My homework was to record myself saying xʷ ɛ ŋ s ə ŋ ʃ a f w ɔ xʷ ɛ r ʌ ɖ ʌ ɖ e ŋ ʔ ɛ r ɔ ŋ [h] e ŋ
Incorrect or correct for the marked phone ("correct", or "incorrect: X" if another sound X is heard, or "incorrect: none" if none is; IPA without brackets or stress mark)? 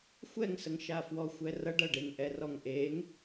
incorrect: ʔ